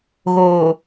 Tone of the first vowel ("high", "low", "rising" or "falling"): low